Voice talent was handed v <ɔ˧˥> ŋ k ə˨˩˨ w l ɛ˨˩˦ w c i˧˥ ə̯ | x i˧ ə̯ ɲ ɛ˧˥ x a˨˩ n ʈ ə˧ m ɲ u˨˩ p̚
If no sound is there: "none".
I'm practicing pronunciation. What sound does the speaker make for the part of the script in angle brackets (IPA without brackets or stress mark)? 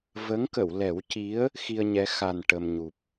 ə˧˥